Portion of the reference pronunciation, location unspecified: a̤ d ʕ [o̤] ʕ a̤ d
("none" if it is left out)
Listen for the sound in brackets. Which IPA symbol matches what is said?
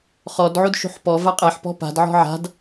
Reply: ɔ̤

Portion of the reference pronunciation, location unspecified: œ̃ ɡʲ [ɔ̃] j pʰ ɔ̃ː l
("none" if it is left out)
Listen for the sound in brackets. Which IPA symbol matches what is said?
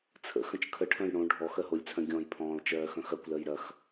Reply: ɔ̃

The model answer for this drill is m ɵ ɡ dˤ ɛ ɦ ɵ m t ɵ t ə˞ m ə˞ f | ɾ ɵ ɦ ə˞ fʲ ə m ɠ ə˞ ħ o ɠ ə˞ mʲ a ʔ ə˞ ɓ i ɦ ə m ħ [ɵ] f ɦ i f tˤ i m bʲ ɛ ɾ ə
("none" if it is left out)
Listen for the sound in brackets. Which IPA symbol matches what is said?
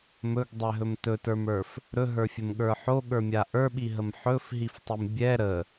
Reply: ɵ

